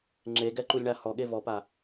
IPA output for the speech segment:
ŋ͡ǁ e ɡ ɛ ǃ u lʲ ɳ a h ɔ ɠ e v ɔ p a

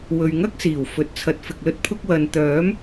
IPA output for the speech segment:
w ɵ˨ ɥ ŋ ɐ˥ k̚ s iː˨˩ w f ɵ˨ t̚ t͡sʰ ɐ˨˥ t̚ f ɪ˨ k̚ l ɵ˥ t̚ pʰ ʊ˥ k̚ w ɐ˨ n t̪ œː˨˥ m

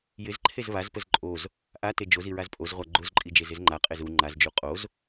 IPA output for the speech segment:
j ɪ z ǃʰ e z β a z p ə z ǃʼ o z | ʔ a t e d͡ʒ o z i ɹ a z pʼ o z ʁʷ a ɡ͡ǃ o z ǃʼ i d͡ʒ e z ɪ z ŋ͡ǃ a qʼ e z u ŋ͡ǃ a z d͡ʒ u qʼ o z

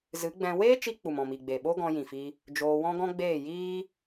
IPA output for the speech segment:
z ɨ˨˦ ɡ͡b ɛ̃˧ w eː˦ t͡ʃ i˧ k͡p u˨ m ɔ̃˨ m i˨ ɡ͡b e˨ ɓ o˦ ɡ ɔ̃˧ j ĩ˨ f i˧ | d͡ʒ oː˧ w ɔ̃˦ ɡ ɔ̃˦ ɡ͡b eː˦˨ j iː˦

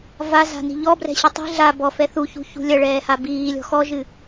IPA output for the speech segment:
v a z a̤ n i̤ ʎ ɔ b r ɛ̤ ɕ i tˤ i̤ ɮ a b ɔ f ɛ θ u ç ṳ ç ṳ lʲ ɐ ɭ ɛː h a b iː lʲ ɔ̤ x ɔ ʒ ɨ

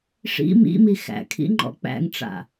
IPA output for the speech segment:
ʂ ḭ m ḭ m i x æ̰ kʰ ḭ ŋ͡ǃ ɔ̰ k͡p æ̰ ŋ ʈ͡ʂ a̰

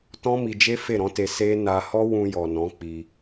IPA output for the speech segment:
t ɔ̃˦ m i˧ d͡ʒ e˦ f e˦˨ ɾ ɔ̃˨˦ t e˧ s e˦ n a˧ h ɔ˦ w ũ˧ j ɔ˨ n ɔ̃˨˦ k͡p i˧

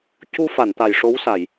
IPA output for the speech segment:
c u˧ f a˨˩˨ n t̪ a˨˩ j ʂ o˧˥ w s a˨˩˨ j

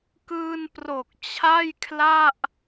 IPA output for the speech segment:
k ɯː˧ n p r o˨˩ k̚ t͡ɕʰ a˥˩ j kʰ l a˥˩ ʔ

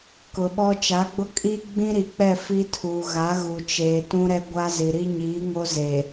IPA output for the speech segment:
k ʊ˨ ɓ ɔ˦ t͡ʃ a˨˦ ɡ͡b ʊ˦ kʼ i˦ ɡ͡b ĩ˦ ɾ i˨ k͡p ɛ˦˨ f i˦ tʰ uː˨ ɣ a˨˦ ɣ u˨ t͡ʃ eː˨ t ũ˦ ɾ ɛ˦ ɡʷ a˦ z i˨ ɾ i˦ ɲ iː˨˦ ŋ o˦ z e˨

